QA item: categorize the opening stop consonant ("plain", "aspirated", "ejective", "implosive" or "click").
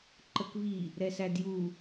click